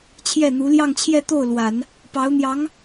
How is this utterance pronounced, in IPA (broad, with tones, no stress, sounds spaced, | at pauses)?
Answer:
t͡ɕʰ j ɛ˥˩ n̪ u˧˥ l j ɑ˥˧ ŋ t͡ɕʰ j ɛ˥˧ t̪ o˥˩ ʊ̯ l w a˨˩˦ n | p ɑ˧˥ ʊ̯ n̪ j ɑ˧˥ ŋ